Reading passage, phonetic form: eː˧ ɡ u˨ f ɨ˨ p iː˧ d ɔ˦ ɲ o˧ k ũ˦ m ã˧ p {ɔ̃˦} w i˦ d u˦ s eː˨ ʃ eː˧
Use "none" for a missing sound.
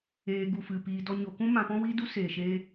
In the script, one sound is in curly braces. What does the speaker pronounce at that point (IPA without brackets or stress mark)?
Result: ɔ̃˦